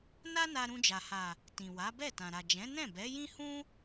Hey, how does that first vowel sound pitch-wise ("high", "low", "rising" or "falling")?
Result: high